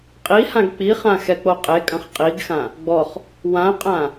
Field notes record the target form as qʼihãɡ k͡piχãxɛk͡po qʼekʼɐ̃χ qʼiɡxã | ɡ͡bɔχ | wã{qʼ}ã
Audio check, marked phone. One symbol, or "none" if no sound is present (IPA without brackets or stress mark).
qʼ